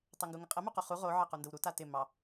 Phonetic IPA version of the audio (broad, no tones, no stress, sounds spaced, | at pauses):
tˤ ɛ ŋ ɡ u ŋ ɪ qʼ ə m u q o χ u ʁ o ʕ ɑ q u n d ə w ɾ u t a t ɪ m ɑ